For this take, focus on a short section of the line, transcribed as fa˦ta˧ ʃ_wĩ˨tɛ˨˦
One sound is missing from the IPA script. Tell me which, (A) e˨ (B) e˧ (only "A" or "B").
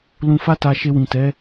B